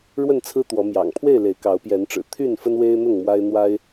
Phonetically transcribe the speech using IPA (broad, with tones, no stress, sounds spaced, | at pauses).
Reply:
ɻ w ə˥˨ n t͡sʰ ɹ̩˦ t̪ w ɔ˨˦ m j ɑ̰˨˩ ŋ pʰ w e˥˨ ɪ̯ l e˨˦ ɪ̯ k ɑ˨˦ ʊ̯ p j ɛ˨˦ n ʈ͡ʂ ɻ̩˨˩ t̪ʰ y˥˨ n f ə˦ n w e˦ ɪ̯ n̪ ʊ˥˨ ŋ m w a˦ ɪ̯ n̪ w a˦ ɪ̯